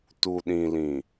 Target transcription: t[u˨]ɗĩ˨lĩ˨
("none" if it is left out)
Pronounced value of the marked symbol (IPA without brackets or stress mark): u˨